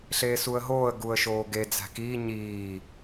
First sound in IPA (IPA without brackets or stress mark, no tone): ɬ